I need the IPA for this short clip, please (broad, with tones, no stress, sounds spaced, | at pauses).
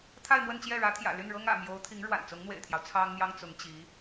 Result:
t̪ʰ a˥˧ ɪ̯ m w ə˥˧ n t͡ɕ j ɛ˥˩ ɻ ä˧˥ t̪ʰ j ä̰˨˩ l y˥˩ n ɻ ɤ˥ ŋ ä̰˨˩ m j o˧˥ ʊ̯ t̪ʰ i˧˥ ŋ ɻ w a̰˨˩ n t͡s ʊ˧˥ ŋ n̪ w ḛ˨˩ ɪ̯ t̪ʰ j ɑ˦ ʊ̯ t͡sʰ ɑ˥ ŋ n̪ j ɑ˥ ŋ t͡s ʊ˧˥ ŋ t͡ɕ i˧˥